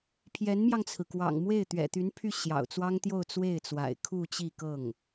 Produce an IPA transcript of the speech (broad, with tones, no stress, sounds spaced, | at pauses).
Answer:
pʰ j ɛ˧˥ n m j ɑ˧ ŋ t͡sʰ ɹ̩˩ k w ɑ̰˨˩ ŋ m w e˥˩ ɪ̯ t̪ ɥ ɛ̰˨˩ t̪ y˧˥ n pʰ y˥˩ ɕ j ɑ̰˨˩ ʊ̯ t͡s w ɑ˥ ŋ t̪ j o˥˧ ʊ̯ t͡s w e˥˩ ɪ̯ t͡s w a̰˨˩ ɪ̯ kʰ u˥˧ t͡ɕ i˥˧ k ɤ˥˩ ŋ